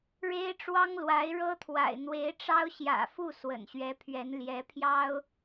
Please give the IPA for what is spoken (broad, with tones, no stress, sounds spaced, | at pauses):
ɻ e˥ ɪ̯ ʈ͡ʂ w ɑ˥ ŋ l w a˧˥ ɪ̯ ɻ ɤ˥ t̪ʰ w a̰˨˩ ɪ̯ n̪ w e˧˥ ɪ̯ ʈ͡ʂ ɑ˥ ʊ̯ ɕ j ä̰˨˩ f u˥˩ s w ə̰˨˩ n ɕ ɥ ɛ˧˥ pʰ ɥ ɛ˧˥ n l j ɛ˧˥ pʰ j ɑ˥ ʊ̯